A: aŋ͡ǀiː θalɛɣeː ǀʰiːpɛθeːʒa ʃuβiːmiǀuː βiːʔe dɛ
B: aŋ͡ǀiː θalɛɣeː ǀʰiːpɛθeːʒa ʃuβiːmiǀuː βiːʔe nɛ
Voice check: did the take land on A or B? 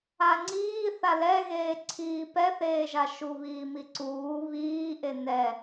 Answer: B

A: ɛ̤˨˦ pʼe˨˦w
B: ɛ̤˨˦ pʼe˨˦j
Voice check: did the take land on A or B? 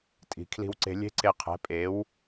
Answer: A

